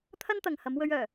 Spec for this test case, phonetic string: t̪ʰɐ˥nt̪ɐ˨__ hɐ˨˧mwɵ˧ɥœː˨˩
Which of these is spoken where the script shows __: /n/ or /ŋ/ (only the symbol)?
ŋ